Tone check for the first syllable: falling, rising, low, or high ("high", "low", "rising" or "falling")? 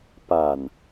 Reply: low